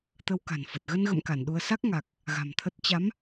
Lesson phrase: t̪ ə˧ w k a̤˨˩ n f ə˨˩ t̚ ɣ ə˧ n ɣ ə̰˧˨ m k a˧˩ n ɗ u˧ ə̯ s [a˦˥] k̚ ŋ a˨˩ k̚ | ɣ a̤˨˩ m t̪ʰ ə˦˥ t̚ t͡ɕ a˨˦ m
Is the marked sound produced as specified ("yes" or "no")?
yes